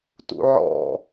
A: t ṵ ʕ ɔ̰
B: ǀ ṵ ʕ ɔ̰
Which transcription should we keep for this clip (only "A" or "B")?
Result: A